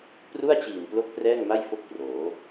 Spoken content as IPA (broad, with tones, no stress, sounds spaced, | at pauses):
p r u˥˩ a̯ t͡ɕ iː˨˩ m p l o˦˥ k̚ p r ɛː˥˩ ŋ m a˥˩ j f o˥˩ k̚ p r oː˩˦